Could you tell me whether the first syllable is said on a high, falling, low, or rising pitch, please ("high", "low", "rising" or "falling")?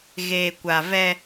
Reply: low